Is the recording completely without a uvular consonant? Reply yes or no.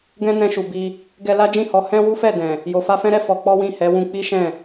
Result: yes